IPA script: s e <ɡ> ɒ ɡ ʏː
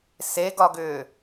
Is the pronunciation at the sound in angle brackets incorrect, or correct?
correct